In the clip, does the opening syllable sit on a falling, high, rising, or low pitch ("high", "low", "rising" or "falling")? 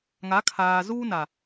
rising